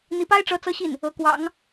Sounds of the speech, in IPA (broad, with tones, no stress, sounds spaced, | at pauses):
n̪ i˧˥ p a˥ ɪ̯ ʈ͡ʂ ɤ˧˥ t͡s ɤ˥ ɕ i˥˩ n | ɤ˧˥ k w ɑ̰˨˩˦ ŋ